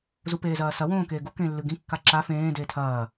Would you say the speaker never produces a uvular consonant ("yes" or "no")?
yes